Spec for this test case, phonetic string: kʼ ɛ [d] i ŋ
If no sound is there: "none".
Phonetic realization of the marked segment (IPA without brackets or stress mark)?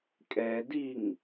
d